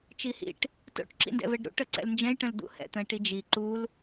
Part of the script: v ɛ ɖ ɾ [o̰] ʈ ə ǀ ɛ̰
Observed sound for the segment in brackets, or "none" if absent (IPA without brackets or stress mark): ṵ